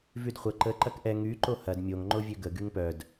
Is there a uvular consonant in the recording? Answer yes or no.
yes